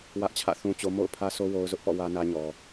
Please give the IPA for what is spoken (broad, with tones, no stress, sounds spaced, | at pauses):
w ä˦ ʔ t͡ɕʰ ä̰˦˨ θ ũ˦ t͡ɕ o˦ m o̰˦˨ ʊ̯ pʰ ä˦ s o˦ w o˦ ʊ̯ z ʊ˦ ʔ p ɔ̰˦˨ w ä˦ n ä˦ ɲ ɔ˨